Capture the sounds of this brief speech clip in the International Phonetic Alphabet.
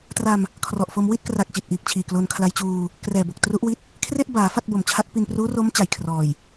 tra˧m | kʰrɔ˨˩ʔfo˧m wi˥˩t̚kra˨˩k̚t͡ɕi˨˩t̚ ʔiː˨˩k̚t͡ɕʰiː˨˩ klo˧n kʰla˧jt͡ɕuː˧ | krɛː˨˩bo˨˩k̚ tru˦˥ʔwi˦˥t̚ | kʰre˥˩ʔbaː˩˦ fa˥˩t̚bo˨˩mt͡ɕʰa˦˥t̚pi˧n pruː˦˥ro˦˥m t͡ɕa˨˩jkʰrɔː˨˩j

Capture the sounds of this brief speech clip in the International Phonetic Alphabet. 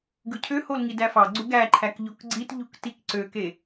ɡɯcʰøhol ŋidæfɑɡ͡ǀu ɡæǃʰæk ʎokɡ͡ǀitʎuk tikǀøke

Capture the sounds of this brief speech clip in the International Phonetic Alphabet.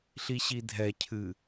ɬiɕidʱɛ cʰɨ

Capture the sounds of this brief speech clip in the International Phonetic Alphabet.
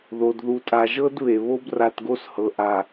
ðo˨dðu˨ tʼa˨ʒɤ˦d βe˨ βo˦bra˨tɡo˦shɤ˨ ʔa˨

